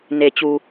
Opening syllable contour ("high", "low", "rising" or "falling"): low